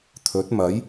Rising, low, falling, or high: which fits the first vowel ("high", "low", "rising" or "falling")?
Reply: rising